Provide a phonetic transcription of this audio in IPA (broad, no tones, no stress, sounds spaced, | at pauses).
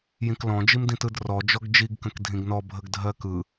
j ĩ k l ɔ̃ d͡ʒ i m d ĩ t ɯ d r ɔ d͡ʒ ɔ ɡ d͡ʒ i ɡ k ə̃ k dʱ ĩ ɡ n ɔ bʱ ə ɡ dʱ ɜ k ɯ